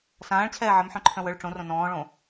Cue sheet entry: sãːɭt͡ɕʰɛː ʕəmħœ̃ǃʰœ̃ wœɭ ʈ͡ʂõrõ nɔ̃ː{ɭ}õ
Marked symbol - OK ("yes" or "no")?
yes